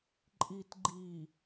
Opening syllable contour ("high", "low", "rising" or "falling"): low